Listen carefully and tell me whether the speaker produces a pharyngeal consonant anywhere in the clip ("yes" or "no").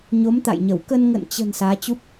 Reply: no